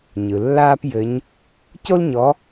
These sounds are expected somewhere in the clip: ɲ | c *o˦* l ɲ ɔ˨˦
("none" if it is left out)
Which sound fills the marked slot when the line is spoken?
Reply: o˦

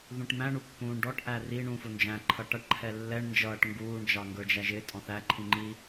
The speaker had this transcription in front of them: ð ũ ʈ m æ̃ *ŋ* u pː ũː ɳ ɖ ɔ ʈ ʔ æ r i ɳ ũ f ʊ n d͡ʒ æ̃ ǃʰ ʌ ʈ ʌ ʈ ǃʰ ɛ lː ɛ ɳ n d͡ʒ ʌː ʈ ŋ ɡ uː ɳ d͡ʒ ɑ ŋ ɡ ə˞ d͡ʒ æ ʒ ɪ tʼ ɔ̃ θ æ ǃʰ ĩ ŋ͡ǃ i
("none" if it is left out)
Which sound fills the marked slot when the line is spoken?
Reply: ɳ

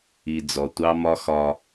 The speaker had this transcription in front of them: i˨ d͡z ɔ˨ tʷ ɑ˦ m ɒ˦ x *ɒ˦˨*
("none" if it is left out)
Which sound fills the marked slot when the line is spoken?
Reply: ɒ˦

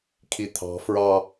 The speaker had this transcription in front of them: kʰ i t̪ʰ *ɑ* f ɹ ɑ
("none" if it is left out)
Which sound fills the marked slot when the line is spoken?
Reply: ɑ̤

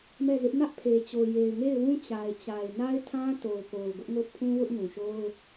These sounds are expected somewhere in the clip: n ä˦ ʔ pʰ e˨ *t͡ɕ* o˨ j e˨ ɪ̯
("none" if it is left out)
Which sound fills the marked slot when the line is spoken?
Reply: t͡ɕ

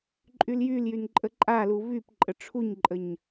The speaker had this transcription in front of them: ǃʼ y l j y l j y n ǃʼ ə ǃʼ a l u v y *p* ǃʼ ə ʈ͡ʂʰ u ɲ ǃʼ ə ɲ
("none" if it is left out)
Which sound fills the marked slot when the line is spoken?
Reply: p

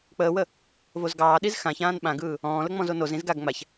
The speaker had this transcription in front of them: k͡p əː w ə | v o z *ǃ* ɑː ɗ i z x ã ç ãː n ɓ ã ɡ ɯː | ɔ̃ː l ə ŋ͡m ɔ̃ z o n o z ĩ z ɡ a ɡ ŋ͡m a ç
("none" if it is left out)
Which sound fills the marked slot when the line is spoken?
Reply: ɡ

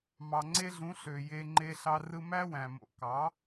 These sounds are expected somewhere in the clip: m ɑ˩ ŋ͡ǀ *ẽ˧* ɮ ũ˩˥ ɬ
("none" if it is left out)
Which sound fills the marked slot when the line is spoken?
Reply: e˧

